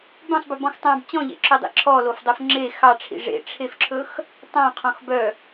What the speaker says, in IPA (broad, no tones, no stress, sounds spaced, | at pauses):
b œ̃ sˤ b ɵ b ɔ̃ x tˤ ɑ̃ b t͡ɕ ɔ̃ ʎ ḛ ǁʰ œ dˤ ḛ ǁʰ ɔ l o f dˤ o f ŋ͡ǁ e x ɑ ʈ͡ʂʰ ḭ ʐ ḛ ʈ͡ʂʰ e f ǁʰ ɵ x | tˤ ɑ̃ qʰ ɔ̃ x b œ